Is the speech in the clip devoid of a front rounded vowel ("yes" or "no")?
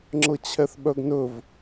no